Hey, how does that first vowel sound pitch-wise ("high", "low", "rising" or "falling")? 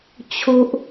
low